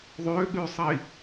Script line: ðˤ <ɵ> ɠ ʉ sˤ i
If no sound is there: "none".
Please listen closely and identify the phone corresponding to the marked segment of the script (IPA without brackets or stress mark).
ø